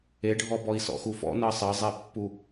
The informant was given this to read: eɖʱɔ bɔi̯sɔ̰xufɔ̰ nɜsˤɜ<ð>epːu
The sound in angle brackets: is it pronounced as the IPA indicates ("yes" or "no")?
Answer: no